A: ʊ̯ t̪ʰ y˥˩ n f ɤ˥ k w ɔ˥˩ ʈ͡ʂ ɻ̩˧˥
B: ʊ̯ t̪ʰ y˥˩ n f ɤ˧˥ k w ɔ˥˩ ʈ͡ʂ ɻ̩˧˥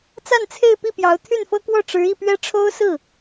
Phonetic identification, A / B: A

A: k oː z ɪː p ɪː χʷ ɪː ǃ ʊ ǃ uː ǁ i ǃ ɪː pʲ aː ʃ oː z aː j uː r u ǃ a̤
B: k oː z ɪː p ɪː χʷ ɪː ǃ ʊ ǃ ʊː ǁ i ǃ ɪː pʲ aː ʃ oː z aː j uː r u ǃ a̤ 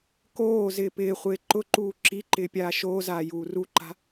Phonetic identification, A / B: A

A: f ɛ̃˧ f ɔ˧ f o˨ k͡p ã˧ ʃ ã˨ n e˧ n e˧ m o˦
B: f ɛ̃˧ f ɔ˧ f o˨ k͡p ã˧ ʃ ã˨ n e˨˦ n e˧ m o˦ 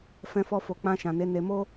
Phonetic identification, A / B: B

